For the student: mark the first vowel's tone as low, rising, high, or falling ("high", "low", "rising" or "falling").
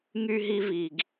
high